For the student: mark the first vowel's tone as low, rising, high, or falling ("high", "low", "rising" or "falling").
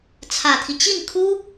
low